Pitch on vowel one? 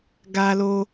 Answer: high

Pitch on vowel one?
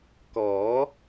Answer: rising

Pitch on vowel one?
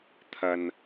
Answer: low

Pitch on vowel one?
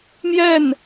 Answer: falling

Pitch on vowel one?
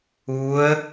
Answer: rising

